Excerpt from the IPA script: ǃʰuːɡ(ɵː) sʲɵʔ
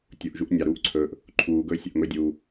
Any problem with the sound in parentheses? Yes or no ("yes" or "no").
no